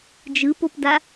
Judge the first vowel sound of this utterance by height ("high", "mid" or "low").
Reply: high